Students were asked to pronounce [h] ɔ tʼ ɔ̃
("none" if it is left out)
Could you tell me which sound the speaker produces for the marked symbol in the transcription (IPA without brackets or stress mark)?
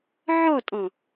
ʕ